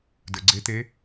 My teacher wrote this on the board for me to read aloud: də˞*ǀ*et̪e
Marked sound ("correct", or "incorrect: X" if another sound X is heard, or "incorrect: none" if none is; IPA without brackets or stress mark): incorrect: ɡ͡ǀ